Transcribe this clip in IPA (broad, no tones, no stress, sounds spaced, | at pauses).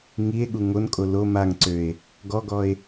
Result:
ŋ i e̯ ɠ u ŋ o n kʼ o l o m a ŋ ǀ ø e̯ | ɡ ɔ ɡ ɔ e̯